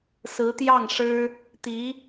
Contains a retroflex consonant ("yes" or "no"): yes